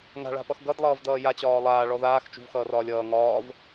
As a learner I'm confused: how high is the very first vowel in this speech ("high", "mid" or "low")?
low